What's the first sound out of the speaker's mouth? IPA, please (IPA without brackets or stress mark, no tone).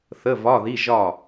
θ